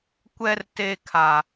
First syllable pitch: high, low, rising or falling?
high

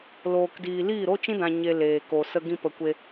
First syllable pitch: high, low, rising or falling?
low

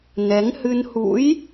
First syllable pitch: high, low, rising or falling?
rising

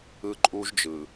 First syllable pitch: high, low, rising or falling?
high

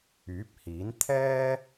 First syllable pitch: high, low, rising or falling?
rising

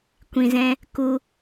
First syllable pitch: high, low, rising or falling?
low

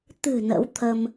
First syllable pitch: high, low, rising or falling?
low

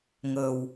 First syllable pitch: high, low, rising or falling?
low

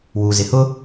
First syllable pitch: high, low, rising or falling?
low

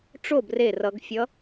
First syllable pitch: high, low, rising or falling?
falling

